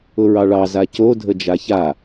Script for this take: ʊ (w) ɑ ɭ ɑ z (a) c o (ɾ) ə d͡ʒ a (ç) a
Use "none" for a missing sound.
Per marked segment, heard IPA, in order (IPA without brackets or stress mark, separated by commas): ɹ, a, dʱ, ç